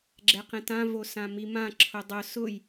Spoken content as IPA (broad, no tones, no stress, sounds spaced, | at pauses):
ɡ͡ǁ ɛ q ɛ̃ t ã v o s ã m i m ã ǁʰ ʊ dˤ ʊ s ʊ j